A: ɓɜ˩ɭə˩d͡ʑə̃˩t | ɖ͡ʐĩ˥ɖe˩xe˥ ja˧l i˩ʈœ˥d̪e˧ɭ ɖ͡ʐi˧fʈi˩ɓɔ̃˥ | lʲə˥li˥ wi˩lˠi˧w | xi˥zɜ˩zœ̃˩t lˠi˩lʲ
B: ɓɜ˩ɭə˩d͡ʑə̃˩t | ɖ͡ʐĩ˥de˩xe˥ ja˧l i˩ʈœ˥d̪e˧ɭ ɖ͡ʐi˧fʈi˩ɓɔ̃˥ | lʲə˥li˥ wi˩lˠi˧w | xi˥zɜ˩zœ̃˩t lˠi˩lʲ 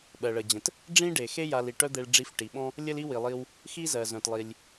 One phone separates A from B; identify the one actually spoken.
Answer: A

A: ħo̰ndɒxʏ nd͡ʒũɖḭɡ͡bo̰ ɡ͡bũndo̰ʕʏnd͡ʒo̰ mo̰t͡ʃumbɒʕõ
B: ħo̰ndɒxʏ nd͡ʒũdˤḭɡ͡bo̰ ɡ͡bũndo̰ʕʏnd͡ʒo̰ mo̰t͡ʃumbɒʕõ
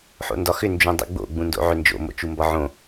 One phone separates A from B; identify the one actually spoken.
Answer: B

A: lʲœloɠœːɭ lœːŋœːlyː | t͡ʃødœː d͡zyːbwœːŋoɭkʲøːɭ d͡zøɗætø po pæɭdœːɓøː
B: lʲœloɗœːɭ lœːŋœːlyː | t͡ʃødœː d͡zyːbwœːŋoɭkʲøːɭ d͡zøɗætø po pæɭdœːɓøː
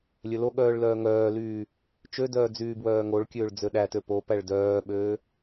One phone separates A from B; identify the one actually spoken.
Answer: A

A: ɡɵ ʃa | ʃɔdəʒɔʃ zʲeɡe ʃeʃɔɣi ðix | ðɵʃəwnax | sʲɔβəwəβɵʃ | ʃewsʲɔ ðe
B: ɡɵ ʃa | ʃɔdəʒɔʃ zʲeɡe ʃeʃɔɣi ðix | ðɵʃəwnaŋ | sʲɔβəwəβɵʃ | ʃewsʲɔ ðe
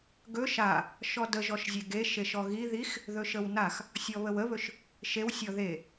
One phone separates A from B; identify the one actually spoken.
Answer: A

